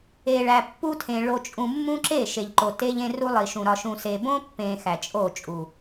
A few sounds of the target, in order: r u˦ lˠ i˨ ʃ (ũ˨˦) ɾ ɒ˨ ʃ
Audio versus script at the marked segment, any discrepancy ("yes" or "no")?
yes